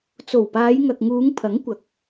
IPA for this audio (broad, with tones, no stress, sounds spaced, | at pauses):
t͡s o˨˩ w p aː˨˧ j ŋ ɐ˨ k̚ ŋ uː˨˧ ŋ pʰ ɐ˨˥ ŋ kʷ ɐ˨ k̚